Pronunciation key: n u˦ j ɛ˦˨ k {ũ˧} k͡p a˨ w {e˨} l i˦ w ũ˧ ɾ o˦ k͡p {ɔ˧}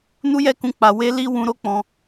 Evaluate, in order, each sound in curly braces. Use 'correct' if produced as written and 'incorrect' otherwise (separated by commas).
correct, incorrect, incorrect